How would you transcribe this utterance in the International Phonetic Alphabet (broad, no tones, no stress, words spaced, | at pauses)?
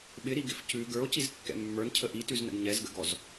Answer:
ɓɪɾiɡɪf cʉ ɡə˞o̯cizkːɛ̰ mːə˞ncʰə ʔitʉznə̰ɡ ɲɛzɡə̰ɡɔz